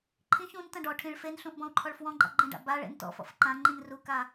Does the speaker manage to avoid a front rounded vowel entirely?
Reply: yes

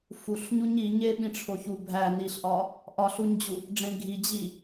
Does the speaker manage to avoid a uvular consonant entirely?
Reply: yes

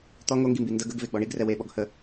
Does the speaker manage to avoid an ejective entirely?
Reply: yes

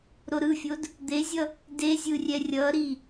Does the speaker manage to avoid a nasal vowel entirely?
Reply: yes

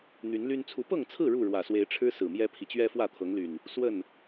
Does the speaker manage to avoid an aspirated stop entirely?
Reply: no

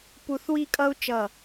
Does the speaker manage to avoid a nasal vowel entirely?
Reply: yes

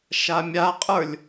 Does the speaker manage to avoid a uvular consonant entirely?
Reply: no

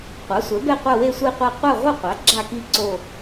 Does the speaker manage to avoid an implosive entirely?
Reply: yes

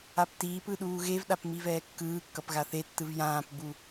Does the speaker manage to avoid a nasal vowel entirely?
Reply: no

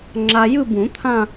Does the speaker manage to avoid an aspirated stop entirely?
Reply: no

